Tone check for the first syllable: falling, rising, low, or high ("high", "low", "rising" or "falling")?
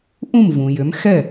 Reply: falling